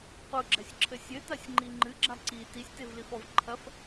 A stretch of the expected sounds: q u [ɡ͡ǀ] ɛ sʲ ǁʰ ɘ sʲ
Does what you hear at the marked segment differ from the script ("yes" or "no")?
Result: yes